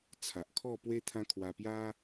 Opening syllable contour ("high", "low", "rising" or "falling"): low